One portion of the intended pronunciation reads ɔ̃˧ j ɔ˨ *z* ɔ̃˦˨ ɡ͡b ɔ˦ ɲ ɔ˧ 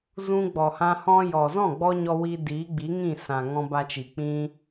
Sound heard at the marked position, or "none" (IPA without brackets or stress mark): z